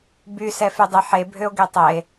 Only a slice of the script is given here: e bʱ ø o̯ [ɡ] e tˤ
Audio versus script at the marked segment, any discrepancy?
no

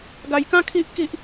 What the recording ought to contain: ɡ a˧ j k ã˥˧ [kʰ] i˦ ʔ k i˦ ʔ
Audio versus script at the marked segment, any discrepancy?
no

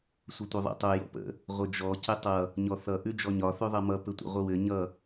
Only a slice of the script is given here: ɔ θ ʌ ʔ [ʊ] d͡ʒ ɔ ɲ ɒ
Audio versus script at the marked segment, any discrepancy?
yes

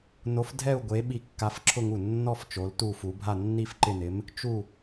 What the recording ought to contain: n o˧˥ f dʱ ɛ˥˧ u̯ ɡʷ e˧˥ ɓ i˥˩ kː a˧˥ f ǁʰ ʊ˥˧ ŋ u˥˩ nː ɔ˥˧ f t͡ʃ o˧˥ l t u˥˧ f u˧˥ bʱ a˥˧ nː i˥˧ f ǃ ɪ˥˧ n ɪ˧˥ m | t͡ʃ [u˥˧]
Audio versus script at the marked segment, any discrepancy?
no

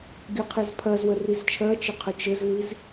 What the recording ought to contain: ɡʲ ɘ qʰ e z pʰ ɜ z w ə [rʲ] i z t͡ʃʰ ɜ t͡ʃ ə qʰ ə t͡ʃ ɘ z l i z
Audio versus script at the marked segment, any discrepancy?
yes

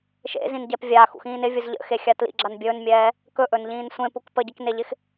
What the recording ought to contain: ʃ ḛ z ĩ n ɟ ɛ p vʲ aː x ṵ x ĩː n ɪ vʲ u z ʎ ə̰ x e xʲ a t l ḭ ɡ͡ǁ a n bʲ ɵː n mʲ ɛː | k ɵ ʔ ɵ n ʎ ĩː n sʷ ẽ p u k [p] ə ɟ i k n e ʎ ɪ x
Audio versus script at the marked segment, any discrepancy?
no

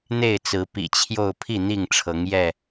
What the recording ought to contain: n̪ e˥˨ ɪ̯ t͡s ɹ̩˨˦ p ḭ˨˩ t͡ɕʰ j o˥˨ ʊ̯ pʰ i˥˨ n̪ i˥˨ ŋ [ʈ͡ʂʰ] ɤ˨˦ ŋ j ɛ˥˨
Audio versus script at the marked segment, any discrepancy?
no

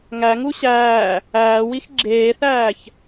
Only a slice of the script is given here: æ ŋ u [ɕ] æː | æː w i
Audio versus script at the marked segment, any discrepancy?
no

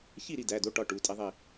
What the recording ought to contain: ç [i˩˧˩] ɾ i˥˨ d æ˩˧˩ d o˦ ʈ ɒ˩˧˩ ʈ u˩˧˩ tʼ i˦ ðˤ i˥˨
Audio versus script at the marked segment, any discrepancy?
yes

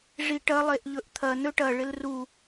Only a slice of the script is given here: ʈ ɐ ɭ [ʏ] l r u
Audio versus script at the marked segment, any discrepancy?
yes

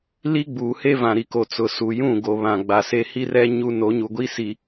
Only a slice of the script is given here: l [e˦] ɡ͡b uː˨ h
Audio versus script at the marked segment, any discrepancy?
yes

